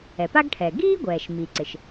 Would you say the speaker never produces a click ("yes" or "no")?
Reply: no